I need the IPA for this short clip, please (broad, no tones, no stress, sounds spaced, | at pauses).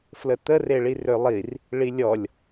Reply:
f l ə t̪ ə r e ɭ i r ø lˠ i r | ɭ i lʲ ɔ lʲ